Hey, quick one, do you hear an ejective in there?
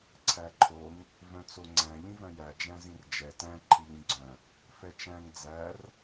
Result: no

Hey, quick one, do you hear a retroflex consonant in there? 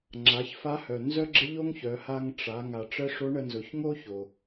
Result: yes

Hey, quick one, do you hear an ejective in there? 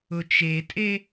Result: yes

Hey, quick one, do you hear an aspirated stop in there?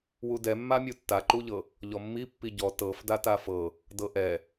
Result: no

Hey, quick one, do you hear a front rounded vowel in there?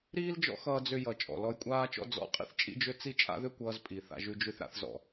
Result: yes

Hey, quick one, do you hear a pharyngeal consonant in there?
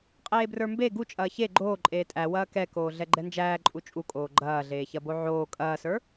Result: yes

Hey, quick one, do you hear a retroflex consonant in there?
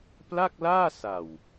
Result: no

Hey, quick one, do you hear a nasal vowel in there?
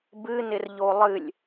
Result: no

